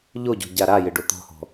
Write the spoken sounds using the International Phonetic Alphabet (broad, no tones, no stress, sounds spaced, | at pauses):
ʎ o ɟ o̤ ɟ a ɾ a j ɪ ɖ o t̪ ɔ̤ h ɔ̤